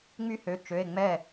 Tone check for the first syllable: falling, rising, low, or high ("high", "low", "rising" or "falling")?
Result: high